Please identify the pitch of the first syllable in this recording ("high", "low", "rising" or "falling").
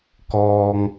low